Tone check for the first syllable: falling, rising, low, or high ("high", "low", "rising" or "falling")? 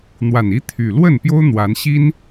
low